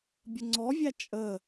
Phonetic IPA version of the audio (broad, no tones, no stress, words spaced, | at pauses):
bʲəŋ͡ǀɔvʲæ t͡ʃʼə